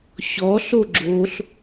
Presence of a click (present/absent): present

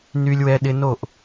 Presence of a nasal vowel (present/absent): absent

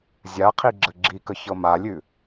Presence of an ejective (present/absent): absent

